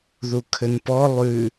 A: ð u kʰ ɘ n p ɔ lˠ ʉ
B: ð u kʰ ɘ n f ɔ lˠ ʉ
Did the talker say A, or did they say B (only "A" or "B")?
A